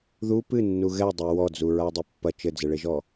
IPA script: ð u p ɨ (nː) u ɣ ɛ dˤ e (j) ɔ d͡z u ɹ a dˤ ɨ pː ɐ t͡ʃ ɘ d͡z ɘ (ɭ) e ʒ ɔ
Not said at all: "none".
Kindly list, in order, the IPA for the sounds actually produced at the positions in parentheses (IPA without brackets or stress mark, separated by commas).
nː, w, ɭ